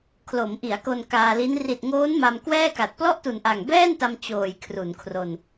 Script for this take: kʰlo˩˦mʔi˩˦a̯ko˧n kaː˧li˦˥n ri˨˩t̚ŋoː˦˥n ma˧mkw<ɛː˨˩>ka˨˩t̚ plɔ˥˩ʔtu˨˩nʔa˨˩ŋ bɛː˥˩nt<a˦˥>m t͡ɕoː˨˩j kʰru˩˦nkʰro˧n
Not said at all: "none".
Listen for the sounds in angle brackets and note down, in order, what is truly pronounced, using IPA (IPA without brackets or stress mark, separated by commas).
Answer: ɛː˥˩, a˧